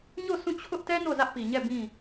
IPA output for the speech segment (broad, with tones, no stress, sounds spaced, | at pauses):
ɲ o˦˨ s ũ˦˨ t͡ɕʰ ʊ˦ ʔ t ɛ˦ n o˦˨ z ä˦ ʔ p i˨ ɲ ɛ˦˨ b ĩ˦˨